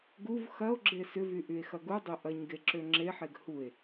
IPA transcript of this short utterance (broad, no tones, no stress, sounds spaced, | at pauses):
ɡ u v x ɐ o̯ ɡ͡ǁ e s ʏ v y ʔ y e̯ x ɐ ɡ u dˤ ø ʔ ɐ ɲ ɡ e ǁ ø ŋ͡ǁ e ħ e ɡ h u e̯